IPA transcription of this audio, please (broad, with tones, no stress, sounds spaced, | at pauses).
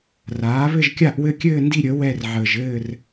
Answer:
r aː˨˥ β ɘ˥˧ ʒ kʲ a˥˧ ʔ w ɘ˥˧ kʲ ɘː˥˧ n d i˥˧ ɾʲ ə˨˥ w ɛ˥˧ r ʕ əː˧ ʒ ɘː˥˧ r